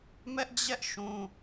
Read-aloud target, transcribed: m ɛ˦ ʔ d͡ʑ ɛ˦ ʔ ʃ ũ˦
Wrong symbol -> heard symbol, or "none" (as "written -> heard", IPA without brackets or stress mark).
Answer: none